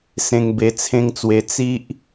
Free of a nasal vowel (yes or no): no